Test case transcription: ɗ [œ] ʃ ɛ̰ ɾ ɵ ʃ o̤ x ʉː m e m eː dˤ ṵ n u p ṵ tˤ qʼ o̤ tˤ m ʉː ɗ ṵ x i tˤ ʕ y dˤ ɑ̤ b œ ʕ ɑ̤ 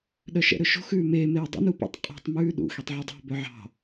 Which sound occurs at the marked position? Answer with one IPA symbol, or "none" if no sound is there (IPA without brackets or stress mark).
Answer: œ